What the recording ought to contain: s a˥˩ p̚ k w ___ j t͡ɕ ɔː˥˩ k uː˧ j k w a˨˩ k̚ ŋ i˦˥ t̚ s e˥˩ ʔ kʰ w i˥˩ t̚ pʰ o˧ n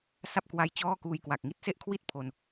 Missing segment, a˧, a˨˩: a˧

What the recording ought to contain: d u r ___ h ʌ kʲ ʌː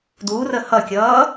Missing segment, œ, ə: ə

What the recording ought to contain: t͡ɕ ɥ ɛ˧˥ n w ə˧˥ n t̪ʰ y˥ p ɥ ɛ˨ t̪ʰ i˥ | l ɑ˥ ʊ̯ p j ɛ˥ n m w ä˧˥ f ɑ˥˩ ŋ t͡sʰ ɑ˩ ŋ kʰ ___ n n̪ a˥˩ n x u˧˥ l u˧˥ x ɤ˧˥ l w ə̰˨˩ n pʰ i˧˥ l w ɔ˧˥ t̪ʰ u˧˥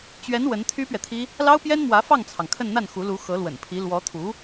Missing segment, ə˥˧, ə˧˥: ə˥˧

